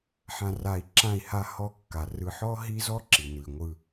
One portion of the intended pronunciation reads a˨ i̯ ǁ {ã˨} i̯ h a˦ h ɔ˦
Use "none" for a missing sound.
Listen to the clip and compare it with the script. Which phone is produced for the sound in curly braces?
ã˦˨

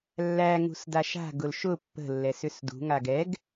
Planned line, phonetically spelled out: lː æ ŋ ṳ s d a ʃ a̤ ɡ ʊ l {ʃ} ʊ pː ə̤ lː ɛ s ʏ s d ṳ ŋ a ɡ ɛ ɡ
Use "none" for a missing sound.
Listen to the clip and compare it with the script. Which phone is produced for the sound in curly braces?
ʃ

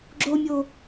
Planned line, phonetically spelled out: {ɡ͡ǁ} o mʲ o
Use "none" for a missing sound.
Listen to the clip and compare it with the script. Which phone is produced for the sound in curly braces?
ɡ͡ǁ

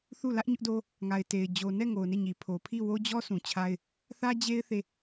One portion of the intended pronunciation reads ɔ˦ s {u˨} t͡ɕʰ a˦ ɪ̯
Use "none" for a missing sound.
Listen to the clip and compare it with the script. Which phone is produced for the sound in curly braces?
ũ˨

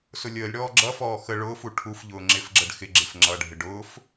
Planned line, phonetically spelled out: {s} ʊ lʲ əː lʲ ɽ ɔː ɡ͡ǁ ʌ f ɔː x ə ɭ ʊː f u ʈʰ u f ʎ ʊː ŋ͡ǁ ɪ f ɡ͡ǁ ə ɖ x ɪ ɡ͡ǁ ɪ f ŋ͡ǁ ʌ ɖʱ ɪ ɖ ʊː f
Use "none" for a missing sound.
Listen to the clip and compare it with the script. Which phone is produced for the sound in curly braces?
s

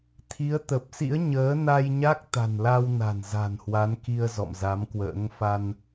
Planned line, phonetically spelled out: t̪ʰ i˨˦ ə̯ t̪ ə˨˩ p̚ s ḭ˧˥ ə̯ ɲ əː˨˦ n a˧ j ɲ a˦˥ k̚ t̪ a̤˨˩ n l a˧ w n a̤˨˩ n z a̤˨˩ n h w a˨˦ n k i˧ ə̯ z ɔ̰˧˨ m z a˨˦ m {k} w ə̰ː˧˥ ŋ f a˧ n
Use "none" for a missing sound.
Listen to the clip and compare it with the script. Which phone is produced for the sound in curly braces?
k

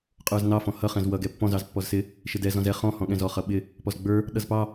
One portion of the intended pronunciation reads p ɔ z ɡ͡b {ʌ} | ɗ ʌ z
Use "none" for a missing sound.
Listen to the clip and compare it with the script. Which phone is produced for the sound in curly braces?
ə˞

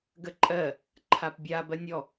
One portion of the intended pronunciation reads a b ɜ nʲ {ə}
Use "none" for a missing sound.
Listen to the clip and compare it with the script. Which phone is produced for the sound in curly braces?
ɔ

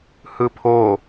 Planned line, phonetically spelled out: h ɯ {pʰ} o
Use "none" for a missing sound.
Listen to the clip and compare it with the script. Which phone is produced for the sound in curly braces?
pʰ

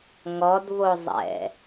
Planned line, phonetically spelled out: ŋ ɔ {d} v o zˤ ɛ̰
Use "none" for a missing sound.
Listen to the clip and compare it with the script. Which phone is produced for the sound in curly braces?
d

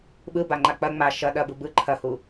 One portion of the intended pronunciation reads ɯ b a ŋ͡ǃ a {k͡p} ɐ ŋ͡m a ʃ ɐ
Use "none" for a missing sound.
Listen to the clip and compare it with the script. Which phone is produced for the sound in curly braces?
k͡p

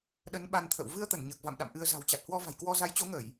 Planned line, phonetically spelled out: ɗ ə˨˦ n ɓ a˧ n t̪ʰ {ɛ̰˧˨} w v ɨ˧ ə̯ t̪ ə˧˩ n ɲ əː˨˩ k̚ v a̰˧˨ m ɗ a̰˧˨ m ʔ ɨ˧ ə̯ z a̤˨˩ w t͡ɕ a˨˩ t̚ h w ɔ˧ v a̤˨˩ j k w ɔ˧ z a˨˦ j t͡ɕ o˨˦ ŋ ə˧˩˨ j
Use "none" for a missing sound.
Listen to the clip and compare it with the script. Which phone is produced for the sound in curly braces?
ə̰˧˨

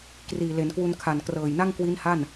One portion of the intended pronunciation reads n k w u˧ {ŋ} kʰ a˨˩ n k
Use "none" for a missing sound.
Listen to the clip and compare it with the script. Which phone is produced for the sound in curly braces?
n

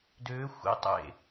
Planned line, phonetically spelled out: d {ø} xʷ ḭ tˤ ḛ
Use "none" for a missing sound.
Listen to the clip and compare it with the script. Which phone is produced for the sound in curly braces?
ø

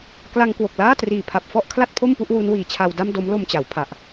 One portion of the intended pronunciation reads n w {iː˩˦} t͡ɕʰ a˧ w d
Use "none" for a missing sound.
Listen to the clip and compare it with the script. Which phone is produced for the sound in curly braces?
iː˨˩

